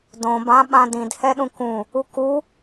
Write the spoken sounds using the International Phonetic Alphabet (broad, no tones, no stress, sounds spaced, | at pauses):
d õ b ã ɓ ã d ĩ d h ɛ ɗ ũ k ũ | u k u